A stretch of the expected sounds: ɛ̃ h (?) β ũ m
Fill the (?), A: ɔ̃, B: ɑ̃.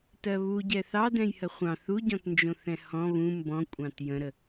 A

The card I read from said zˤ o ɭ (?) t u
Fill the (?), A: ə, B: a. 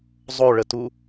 A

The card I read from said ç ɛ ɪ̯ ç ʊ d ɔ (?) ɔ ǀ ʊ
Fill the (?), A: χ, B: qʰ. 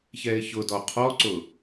B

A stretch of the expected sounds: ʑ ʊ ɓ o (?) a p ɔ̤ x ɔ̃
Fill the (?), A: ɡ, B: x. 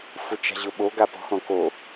A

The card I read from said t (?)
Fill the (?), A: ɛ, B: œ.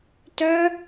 B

